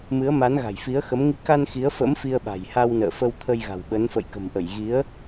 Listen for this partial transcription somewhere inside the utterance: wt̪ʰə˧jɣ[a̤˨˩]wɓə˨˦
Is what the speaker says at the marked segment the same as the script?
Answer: yes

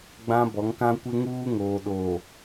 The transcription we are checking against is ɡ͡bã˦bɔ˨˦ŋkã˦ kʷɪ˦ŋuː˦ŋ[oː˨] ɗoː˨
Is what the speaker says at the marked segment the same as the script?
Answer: yes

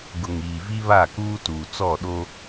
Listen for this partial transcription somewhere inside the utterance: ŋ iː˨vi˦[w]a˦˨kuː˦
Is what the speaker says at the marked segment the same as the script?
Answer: no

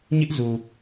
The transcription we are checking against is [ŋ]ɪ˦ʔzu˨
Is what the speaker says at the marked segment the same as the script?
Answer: no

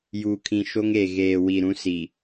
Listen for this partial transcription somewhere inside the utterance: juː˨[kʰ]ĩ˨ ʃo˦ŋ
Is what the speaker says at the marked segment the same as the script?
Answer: yes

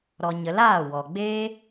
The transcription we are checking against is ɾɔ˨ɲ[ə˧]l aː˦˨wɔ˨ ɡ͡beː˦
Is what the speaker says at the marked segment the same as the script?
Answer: no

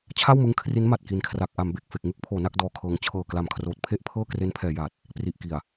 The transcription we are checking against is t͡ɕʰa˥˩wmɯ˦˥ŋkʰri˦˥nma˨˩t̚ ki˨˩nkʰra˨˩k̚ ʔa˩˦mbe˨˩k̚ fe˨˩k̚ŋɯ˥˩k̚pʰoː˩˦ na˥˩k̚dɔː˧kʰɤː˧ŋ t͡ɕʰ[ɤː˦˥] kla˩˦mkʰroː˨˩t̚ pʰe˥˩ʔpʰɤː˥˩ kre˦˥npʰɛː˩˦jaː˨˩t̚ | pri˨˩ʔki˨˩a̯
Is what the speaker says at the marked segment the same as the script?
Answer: no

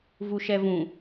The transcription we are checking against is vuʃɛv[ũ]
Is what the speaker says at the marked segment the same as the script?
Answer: yes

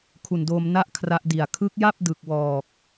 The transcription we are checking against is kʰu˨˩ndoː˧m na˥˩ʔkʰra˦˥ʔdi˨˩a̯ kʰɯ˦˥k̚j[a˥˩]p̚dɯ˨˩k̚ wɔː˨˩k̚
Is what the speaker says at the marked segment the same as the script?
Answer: yes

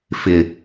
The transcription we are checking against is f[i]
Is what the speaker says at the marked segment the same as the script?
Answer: no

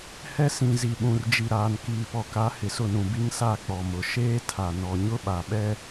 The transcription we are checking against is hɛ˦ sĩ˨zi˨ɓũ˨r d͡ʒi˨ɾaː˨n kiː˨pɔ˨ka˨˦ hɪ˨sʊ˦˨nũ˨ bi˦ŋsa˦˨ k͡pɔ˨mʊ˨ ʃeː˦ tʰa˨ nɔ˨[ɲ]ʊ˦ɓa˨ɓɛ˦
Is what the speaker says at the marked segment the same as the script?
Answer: yes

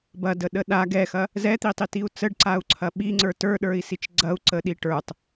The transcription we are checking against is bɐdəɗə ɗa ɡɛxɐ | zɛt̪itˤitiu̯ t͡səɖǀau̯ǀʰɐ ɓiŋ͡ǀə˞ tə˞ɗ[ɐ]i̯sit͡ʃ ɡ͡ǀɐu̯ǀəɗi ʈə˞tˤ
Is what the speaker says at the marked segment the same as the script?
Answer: no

